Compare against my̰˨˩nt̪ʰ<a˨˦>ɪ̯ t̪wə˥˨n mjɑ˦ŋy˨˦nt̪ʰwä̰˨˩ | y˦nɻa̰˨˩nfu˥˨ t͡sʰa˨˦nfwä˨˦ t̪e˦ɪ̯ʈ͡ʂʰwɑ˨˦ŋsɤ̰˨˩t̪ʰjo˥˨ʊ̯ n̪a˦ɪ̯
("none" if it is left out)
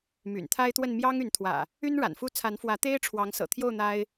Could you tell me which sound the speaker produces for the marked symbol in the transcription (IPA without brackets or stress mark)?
a˦